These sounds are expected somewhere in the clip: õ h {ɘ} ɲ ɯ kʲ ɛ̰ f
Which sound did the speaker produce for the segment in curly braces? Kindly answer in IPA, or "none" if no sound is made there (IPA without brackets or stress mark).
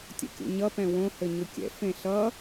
ɘ